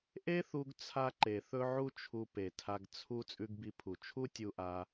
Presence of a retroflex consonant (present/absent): absent